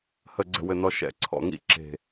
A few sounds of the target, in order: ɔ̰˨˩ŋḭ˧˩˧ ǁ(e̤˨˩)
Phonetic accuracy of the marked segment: correct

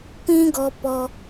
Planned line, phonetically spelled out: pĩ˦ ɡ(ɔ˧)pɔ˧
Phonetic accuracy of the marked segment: correct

